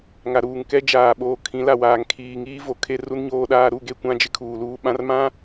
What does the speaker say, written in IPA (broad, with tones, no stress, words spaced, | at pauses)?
ŋa˨ɾuː˨ŋ kɛ˦ d͡ʒaː˨ɓoː˨kʰĩ˨˦ la˨waː˨ŋ kʰiː˨ŋiː˦ vo˨kʰe˦ ru˦nɲoː˦ɗaː˦ ɾu˦˨ɡe˦˨kʷã˦d͡ʒɪ˦ kʰuː˨luː˦ ɓã˦rmã˦